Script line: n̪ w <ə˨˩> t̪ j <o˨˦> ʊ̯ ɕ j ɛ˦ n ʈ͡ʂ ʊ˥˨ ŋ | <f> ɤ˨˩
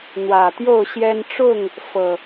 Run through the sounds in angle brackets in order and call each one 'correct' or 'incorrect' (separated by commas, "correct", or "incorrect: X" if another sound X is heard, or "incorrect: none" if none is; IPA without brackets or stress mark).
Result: incorrect: ä˨˩, incorrect: o˥˨, correct